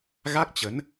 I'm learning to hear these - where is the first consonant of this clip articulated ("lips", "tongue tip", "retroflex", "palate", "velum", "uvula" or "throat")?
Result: velum